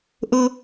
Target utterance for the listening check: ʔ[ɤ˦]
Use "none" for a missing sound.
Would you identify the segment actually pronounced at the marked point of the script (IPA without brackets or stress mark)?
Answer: ɤ˦